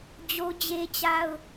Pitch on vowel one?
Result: high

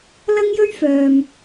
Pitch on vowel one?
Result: high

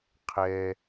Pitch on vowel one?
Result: low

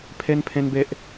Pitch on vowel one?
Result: high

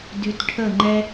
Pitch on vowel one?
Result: low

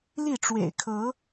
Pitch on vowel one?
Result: falling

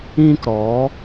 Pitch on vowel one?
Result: high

